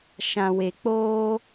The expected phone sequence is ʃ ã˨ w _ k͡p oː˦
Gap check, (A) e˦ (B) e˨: B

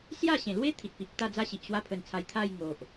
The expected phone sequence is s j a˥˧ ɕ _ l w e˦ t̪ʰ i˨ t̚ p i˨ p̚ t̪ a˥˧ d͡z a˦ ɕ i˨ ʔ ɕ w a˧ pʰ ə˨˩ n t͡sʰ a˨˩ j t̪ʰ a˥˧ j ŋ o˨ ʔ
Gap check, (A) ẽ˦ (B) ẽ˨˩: B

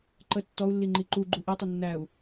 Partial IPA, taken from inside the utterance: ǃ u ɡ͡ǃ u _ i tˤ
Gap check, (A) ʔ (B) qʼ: A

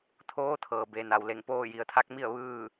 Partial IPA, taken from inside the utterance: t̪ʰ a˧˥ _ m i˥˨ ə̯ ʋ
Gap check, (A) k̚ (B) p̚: A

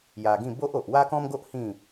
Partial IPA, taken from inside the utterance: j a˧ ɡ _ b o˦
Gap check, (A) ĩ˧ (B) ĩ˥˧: B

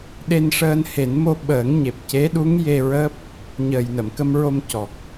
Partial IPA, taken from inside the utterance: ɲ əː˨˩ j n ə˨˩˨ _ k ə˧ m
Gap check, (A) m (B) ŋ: A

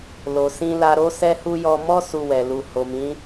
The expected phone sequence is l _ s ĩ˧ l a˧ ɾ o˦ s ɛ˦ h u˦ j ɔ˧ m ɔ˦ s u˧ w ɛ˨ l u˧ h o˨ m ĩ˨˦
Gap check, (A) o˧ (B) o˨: B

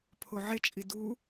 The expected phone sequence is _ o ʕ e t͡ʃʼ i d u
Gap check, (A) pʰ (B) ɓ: A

